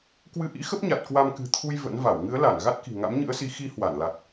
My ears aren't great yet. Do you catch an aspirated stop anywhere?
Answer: yes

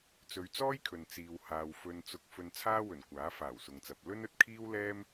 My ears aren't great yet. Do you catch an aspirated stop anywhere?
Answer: yes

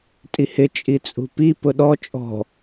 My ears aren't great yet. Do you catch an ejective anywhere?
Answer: yes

